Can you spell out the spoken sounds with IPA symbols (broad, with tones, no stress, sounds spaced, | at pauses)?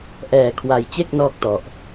ʔ ɛː˧ kʰ w a˧ j t͡ɕ e˥˩ k̚ n ɔː˥˩ k̚ t ɔ˨˩ ʔ